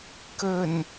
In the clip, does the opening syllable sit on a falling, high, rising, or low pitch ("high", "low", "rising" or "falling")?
low